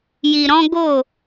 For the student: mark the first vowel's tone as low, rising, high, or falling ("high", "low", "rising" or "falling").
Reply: low